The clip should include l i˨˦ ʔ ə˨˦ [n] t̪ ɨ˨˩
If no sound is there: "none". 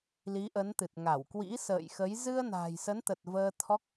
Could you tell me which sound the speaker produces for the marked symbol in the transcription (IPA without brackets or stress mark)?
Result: n